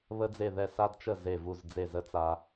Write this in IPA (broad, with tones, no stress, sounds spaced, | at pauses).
β ə˧ d͡z e˧˩ ð ɛ˧˩ s a˧ d t͡ʃ ə˧˩ z e˧˩ v u˧˩ z d͡z e˧˩ z ə˧ t͡s a˧